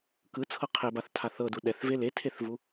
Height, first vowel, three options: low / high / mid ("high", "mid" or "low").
high